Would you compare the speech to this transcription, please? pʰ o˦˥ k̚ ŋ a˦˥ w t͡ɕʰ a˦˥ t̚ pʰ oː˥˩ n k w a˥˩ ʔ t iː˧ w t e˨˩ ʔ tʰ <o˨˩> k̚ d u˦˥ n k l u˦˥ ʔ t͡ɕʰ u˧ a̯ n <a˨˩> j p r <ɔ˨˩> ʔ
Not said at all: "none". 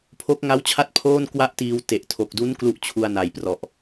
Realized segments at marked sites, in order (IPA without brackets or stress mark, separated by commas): o˨˩, a˨˩, ɔ˨˩